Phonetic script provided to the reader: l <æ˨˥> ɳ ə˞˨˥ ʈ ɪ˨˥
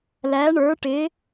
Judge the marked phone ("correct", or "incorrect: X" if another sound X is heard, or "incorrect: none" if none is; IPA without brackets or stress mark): correct